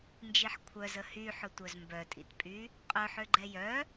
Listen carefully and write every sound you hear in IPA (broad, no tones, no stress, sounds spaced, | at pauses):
n d͡ʒ i ħ kʷʰ œ z ə h y ħ ʊ tʷ œ z m b œ tʼ ḭ t pʼ y | qʼ œ ħ ø ɡ͡ǃ ɛ j œ